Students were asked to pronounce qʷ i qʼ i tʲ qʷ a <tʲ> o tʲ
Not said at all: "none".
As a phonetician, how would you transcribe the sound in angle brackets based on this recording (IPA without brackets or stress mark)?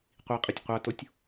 t